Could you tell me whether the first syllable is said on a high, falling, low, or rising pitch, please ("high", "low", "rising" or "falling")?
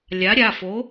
rising